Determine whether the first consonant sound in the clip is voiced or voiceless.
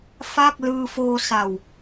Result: voiceless